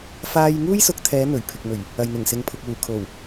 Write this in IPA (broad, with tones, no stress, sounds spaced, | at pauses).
f aː˥ j ŋ uː˥ j s ʊ˨˥ k̚ t̪ʰ ɛː˨˧ n̪ ɵ˨˩ ɥ pʰ ɪ˨ k̚ m ɵ˨˩ ɥ | ɐ˨ j n̪ ɪ˨˩ ŋ s ɪ˨˧ ŋ pʰ ʊ˨ k̚ w uː˨˩ kʰ o˨˩ w